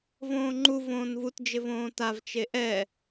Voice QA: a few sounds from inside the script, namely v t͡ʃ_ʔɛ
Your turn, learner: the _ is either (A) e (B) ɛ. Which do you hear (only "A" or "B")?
A